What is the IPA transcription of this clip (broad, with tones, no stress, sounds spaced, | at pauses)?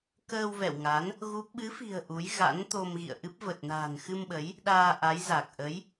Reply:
k əː˧ w v ɛ̰˧˨ w ŋ a˨˦ n | ɣ u˦˥ p̚ ɓ ɨ˨˦ f i̤˨˩ ə̯ ʔ u˨˦ j ɣ a̰˧˥ n t̪ o˧ m ɣ ḭ˧˨ ə̯ ʔ ɨ˦˥ p̚ v ə˨˩ t̚ n a̤˨˩ n x ɨ˧ m ɓ ə˨˦ j | ɗ aː˧ ʔ a˨˦ j z a˨˩ k̚ ʔ ə˨˦ j